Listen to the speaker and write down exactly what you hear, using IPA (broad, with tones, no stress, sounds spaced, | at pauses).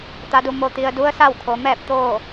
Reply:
t̪ a˩ d u˩ m o˩ t̪ i˩ ə̯ d u˧˥ ə̯ s a˥˨ w kʰ o˩˧ m ɛː˥˨ p̚ t̪ oː˥˨